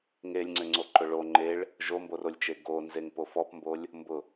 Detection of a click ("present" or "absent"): present